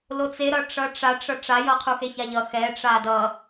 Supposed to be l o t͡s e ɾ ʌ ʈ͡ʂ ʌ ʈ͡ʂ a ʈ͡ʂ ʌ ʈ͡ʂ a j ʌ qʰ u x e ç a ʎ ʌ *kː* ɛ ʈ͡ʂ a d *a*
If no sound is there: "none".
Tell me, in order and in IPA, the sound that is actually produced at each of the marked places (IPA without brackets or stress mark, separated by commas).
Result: x, ʌ